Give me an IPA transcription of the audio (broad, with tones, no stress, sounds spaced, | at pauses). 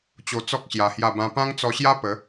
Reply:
t͡ɕ o˧ t͡s ɔ˦ k̚ ɕ j a˧ h j a˥˧ b ã˦ p ã˦ ŋ t͡s ɔ˧ ɕ j a˦ p ə˨˦